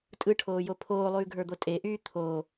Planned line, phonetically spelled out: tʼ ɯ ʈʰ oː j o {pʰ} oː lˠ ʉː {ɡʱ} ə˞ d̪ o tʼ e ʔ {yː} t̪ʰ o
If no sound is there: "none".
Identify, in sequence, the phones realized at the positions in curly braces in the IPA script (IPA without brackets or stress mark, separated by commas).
pʰ, ɡʱ, yː